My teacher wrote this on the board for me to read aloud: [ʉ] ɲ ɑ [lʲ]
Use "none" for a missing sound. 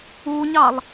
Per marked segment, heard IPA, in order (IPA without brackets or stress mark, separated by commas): u, lˠ